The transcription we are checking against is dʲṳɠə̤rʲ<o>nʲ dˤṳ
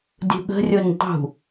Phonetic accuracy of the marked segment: correct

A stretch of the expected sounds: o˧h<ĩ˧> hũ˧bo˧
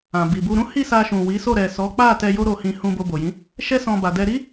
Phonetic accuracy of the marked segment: correct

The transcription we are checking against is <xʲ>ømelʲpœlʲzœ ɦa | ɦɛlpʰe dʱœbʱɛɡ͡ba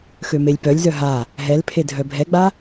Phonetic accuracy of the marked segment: incorrect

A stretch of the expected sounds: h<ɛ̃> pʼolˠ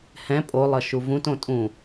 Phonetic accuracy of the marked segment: correct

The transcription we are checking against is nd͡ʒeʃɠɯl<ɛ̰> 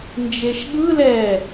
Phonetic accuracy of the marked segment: incorrect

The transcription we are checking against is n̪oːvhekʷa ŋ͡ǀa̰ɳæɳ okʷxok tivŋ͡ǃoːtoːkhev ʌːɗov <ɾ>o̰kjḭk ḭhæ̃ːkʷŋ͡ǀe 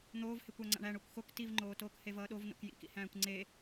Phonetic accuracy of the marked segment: incorrect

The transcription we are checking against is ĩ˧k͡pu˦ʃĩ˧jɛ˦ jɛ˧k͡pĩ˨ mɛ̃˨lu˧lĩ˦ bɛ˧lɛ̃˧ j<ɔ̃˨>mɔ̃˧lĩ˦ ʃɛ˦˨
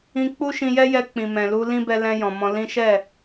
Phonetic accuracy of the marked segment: correct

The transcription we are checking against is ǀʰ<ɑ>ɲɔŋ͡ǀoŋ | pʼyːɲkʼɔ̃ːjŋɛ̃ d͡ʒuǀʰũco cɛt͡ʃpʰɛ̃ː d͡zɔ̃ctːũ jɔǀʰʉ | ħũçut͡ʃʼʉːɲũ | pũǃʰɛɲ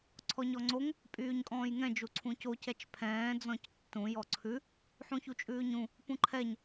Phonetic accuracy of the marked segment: incorrect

